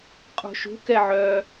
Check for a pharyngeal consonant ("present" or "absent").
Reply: present